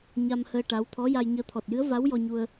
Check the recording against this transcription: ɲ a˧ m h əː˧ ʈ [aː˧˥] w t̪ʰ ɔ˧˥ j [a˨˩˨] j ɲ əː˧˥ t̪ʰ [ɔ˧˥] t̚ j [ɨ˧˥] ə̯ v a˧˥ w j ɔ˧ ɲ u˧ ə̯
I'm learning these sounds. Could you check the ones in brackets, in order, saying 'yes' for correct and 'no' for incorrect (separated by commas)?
no, no, no, yes